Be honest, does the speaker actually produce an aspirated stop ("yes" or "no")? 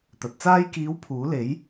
yes